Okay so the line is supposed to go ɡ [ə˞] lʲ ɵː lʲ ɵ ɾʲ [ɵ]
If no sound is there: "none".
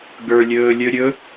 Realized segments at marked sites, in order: ə˞, ɵ

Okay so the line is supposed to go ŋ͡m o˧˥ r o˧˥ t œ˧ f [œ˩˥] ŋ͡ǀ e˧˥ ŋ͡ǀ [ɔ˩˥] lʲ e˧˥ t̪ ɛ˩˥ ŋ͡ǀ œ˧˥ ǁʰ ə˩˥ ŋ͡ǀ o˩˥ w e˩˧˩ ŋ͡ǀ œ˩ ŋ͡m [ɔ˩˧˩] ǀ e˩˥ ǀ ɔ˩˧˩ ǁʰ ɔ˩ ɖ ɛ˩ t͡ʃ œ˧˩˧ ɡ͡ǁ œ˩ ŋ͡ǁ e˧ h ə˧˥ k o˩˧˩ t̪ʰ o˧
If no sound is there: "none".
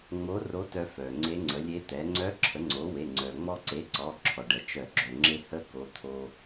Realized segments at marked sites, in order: œ˩, ə˩˥, ɔ˧

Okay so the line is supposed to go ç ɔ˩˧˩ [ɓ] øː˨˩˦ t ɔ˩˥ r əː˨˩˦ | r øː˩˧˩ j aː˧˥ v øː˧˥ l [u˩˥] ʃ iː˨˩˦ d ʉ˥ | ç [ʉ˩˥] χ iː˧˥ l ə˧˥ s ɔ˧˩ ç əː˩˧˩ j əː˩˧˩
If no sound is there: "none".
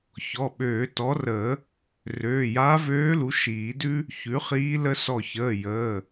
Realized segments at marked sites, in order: ɓ, u˩˥, ʉ˩˥

